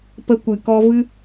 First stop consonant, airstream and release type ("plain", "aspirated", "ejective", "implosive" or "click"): plain